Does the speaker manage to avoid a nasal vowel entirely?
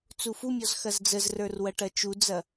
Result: yes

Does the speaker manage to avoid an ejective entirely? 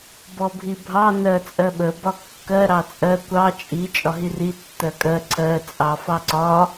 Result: no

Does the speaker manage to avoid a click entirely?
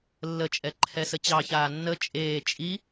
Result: no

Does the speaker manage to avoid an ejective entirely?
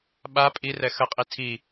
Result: no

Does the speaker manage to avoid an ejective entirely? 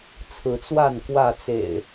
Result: yes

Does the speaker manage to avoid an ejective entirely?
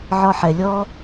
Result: yes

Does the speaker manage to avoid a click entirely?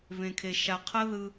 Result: yes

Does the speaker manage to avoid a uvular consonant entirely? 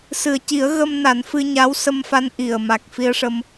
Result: yes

